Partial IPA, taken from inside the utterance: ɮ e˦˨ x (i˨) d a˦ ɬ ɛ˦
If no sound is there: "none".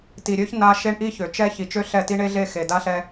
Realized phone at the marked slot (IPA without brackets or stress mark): e˨